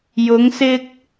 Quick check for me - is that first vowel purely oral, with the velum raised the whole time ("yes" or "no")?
yes